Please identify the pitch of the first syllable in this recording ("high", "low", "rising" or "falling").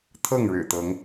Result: falling